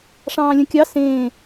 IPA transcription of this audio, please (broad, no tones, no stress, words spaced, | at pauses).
ʂɑ̃ːlʲə̃kʲɑ sẽː